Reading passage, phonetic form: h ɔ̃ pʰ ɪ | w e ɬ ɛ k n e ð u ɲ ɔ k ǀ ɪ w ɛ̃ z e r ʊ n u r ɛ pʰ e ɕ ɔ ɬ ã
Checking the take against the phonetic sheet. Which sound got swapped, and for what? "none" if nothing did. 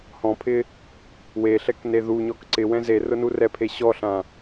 none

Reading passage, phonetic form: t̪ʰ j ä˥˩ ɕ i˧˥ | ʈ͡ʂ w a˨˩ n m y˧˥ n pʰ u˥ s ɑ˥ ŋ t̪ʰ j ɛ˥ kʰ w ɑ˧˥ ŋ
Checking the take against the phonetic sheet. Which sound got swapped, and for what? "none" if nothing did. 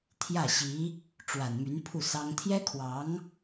u˥ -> u˥˩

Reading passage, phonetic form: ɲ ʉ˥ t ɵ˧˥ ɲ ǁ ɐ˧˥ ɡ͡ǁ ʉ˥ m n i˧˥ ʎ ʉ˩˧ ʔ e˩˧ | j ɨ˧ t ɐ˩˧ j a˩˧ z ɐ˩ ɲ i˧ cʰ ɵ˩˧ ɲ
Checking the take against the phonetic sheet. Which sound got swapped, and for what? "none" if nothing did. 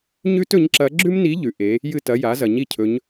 none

